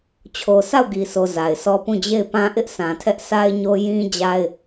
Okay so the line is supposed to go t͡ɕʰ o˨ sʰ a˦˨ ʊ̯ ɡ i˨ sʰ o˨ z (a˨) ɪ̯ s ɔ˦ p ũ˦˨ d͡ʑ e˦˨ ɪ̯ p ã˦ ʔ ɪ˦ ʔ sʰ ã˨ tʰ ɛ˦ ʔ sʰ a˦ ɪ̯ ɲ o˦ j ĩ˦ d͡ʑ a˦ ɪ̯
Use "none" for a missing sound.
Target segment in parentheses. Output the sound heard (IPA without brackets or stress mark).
a˨